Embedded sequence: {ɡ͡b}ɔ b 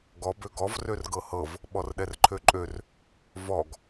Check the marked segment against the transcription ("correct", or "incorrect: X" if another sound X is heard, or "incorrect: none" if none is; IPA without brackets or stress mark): incorrect: ɡ